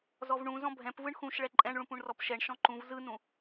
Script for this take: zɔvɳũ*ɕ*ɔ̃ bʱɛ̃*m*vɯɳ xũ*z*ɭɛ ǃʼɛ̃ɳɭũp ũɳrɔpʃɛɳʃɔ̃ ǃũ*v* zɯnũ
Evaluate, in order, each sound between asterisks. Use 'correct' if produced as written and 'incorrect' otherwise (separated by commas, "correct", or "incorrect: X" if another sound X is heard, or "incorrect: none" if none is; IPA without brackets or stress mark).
incorrect: z, incorrect: p, incorrect: ʃ, correct